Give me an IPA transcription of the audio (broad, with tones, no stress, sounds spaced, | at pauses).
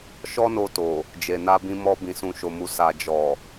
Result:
ʃ ɔ˦ n o˧ t o˨ | d͡ʒ e˨ n a˧ b ĩ˧ m ɔ˧ b ĩ˨ s ũ˨ ʃ o˨ m u˨ s a˨ d͡ʒ ɔ˨